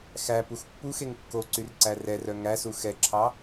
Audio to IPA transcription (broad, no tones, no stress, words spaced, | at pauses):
xæpux pːuxeŋ kːoǀyr ǀærɛrœ ŋæsu xɛǁʰɑ